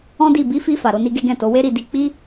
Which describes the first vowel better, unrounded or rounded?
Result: rounded